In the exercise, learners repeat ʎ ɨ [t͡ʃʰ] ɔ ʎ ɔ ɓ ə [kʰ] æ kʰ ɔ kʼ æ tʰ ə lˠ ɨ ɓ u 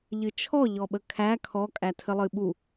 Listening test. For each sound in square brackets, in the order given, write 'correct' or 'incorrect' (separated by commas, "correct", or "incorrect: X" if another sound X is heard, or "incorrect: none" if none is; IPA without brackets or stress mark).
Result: correct, correct